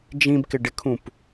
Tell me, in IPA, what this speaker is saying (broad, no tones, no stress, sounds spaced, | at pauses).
d͡ʒ ĩ b k ɪ ɖ ɪ kʰ ũ p